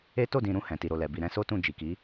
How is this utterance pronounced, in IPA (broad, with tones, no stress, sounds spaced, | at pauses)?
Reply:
e˦ t o˦˨ d ĩ˨ ɾ ũ˧ h ɛ̃˨ t i˨ ɾ o˨ l ɛ˨ b i˨ ɾ ɛ̃˧ s o˦ t ũ˦˨ d͡ʒ i˨ k i˨˦